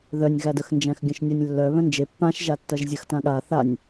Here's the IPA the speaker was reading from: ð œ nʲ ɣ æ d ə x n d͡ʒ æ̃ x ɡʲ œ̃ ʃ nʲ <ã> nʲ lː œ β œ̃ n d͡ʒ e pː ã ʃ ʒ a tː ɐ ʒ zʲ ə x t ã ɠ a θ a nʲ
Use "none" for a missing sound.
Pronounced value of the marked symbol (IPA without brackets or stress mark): a